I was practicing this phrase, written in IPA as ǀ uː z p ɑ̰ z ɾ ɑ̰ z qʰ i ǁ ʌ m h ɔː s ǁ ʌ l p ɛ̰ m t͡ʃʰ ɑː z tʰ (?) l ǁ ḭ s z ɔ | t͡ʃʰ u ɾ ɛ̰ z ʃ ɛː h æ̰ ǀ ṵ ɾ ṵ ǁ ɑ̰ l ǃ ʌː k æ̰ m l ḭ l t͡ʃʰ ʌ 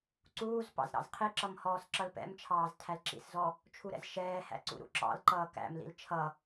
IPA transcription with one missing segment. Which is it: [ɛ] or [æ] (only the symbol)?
æ